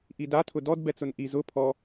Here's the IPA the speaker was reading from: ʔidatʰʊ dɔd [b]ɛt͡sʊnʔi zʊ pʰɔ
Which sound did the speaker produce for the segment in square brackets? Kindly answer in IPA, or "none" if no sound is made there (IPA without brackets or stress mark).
b